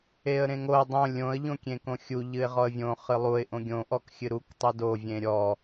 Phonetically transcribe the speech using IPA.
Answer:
e ə̯ ɾ ẽ ŋ o ə̯ dˤ õ lʲ õ ə̯ ʎ õ kʲ ẽ k õ xʲ u ʎ ɨ ɪ̯ ʁ ɔ ə̯ vʲ õ χ ɨ lˠ u ɪ̯ ʔ õ ɡʲ õ ʔ ɔ k xʲ ɨ ɾ u k tˤ ɨ d o vʲ ẽ ɾʲ ɔ

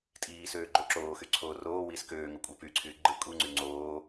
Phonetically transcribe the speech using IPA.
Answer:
tʼ iː s øː ɡ͡ǃ o ǁ oː x y ǀʰ oː r oː w iː s k øː ŋ o kʷʼ æ p y ǀʰ yː ɡ͡ǃ ɯ kʼ u ŋ͡ǀ y ŋ͡ǀ oː

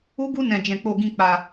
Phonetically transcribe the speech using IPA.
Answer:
u˦ ɡ u˦ n ɛ̃˧ d͡ʒ ɛ̃˧ k͡p o˧ ɡ ĩ˧ k͡p a˧

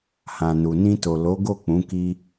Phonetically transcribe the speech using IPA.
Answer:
h ã˨ n u˨ n ĩ˧ t o˨ l o˨˦ ɡ o˦˨ k͡p ũ˨˦ k i˧

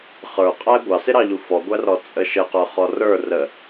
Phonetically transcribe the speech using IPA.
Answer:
χ ə˞ qʼ æ ɡʷ ɑ s ɪ ɾ ɑ ʎ u f ɔ ɡʷ æ r ɔ t͡sʼ ə ʃ ə q ə˞ χ ɔ r ə˞ r ə

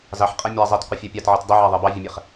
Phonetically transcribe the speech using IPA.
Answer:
z ɑ ħ qʼ ɛ mʲ a zˤ ɛ t qʷ ə fʲ e pʲ ɑ t ʕ i t dˤ ɛ ʕ a ðˤ e b ɑ vʲ ə mʲ ɛ χ

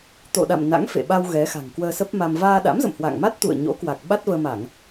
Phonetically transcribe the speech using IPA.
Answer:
t̪ o̰˧˨ ɗ a̰˧˨ m n a̰˧˥ ŋ f ḛ˧˨ ɓ a˧ w ɣ ɛ˨˦ x a̤˨˩ ŋ k w əː˧ s ə˦˥ p̚ m a˧ m v aː˧ ɗ a̰˧˥ m z ə̰˧˨ m h w a̰˧˨ ŋ m a˦˥ t̚ t̪ ṵ˧˨ ə̯ ɲ o̰˧˥ k w a˨˩ k̚ ɓ a˦˥ t̚ v əː˧ m a˧˩˨ ŋ

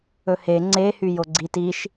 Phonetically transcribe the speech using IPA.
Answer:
ɵ h e ŋ͡ǀ e h y j o ɡ͡ǀ i t i ʃ

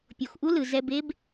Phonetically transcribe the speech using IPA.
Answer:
pʲ o˩ x ʔ u˧ l ɯ˩ z ɛ˧ b e˥ b

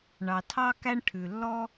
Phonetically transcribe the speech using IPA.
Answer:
ɳ ɑ˨ tʰ ɑ˦ k æ˦ ɳ ʈʰ ʉ˨ lː ɔ˥

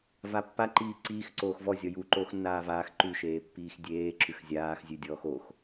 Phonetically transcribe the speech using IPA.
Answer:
v a pː a ǃ iː ǀ iː x ǀ oː x v ɔ zʲ ɔ j u ǃ oː x nː aː v aː x ǃ ʉ ʃ eː pː iː x dʲ eː ǁ ʉ x zʲ aː x zʲ ʉ dʲ ɔː x o x

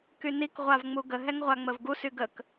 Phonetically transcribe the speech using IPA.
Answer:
k y n i k ʁʷ a v ŋ͡m u ɡ ə ɦ ɛ ŋ ʁʷ a ŋ͡m ə v ɡ u s y ɡ ə k

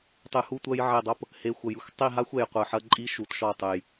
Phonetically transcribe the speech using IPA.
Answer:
tˤ ɨ˨ h u˦ tʷ ɐ˦ j ʕ e˦˨ dˤ o˦ p | h e˨ xʷ ɐ˨ j ɨ˦ xʷ tˤ i˦˨ ɦ a˦ xʷ ɛ˨ j qʷ ɨ˨ ħ ɐ˦ ǃʼ i˦ ʃ u˨ t ʃ ɔ˦˨ tˤ ɨ˨ j

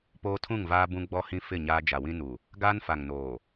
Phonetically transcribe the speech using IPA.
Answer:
p oː˦ tʰ ũ˦˨ ŋ v aː˦ b ũ˦ ɡ͡b ɔ˦ h ĩ˦ f ɪ˦˨ ɲ aː˦ d͡ʒ a˨ w ĩ˦ n u˨ | ɡ aː˦ n f a˨ ŋ n oː˨

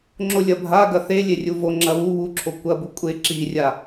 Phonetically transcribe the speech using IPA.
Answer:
ŋ͡ǁ o lʲ ɐ bʱ a ɡ ɐ θ e lʲ e rʲ u v o ŋ͡ǁ ɐ β u β u ǁʰ o kʷ ɐ b u kʷʼ e ǁ i rʲ a

